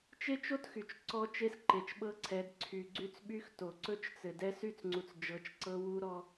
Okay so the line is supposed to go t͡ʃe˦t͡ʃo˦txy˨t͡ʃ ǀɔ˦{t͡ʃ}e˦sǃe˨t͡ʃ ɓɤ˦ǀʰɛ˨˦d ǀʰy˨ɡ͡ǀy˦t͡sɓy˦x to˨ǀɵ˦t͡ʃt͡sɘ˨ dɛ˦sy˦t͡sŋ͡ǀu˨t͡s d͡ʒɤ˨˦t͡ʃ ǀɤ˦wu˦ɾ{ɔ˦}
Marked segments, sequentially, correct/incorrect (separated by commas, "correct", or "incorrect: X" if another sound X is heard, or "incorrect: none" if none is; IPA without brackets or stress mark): correct, correct